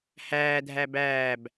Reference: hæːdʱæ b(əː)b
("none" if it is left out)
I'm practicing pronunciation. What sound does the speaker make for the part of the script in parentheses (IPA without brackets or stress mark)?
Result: æː